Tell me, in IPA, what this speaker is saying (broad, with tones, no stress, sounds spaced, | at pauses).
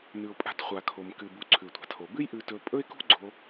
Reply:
n ʉ˩ ʊ̯ pʼ a̤˧ t χʷ a˩ kʰ o˩ m k ɨ˩ b u˩ ǀʰ ʉ˩ tʷ a̤˩ tʰ o˩ b ɨ˥ j ʔ ʉ˧ t ɵ˧ pʼ ɵ˥ ɪ̯ k ṳ˥ ɡ͡ǀ o˧